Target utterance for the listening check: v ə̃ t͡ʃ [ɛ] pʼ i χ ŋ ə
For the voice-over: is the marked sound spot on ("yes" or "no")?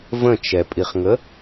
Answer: yes